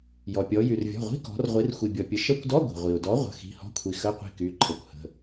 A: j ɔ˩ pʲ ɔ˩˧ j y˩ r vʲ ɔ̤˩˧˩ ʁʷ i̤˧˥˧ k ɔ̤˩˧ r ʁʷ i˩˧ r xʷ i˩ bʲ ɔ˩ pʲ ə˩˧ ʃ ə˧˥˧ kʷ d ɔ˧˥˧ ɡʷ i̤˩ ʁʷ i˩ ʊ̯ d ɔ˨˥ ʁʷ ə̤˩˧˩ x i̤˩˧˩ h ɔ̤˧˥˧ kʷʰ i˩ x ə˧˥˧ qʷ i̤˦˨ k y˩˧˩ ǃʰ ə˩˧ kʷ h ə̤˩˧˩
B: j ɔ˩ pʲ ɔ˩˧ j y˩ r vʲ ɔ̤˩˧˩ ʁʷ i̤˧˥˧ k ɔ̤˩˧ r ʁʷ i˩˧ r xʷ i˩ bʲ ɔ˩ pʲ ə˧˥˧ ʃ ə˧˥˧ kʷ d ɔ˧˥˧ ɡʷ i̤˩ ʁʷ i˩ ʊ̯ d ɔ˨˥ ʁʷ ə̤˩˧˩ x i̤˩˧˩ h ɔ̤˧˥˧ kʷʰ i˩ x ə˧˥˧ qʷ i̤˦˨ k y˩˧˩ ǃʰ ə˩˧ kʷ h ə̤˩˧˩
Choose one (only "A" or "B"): A